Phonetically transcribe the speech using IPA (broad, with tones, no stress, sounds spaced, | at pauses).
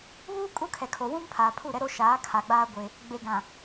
β uː˦ kʼ u˦ kʰ ɛ˨ kʰ o˨ w ũ˦ m pʰ aː˨ pʰ u˦˨ ɾ ɛ˦ ɾ o˦ ʃ aː˨˦ kʰ a˨ ɡ͡b aː˦ ɡʷ e˦ | ɡ͡b e˨ ɡ ã˨